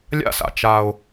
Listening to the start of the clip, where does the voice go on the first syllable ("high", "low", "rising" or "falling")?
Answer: high